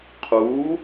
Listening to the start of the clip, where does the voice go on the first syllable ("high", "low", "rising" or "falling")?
rising